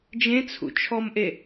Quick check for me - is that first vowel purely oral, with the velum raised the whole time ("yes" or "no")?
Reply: no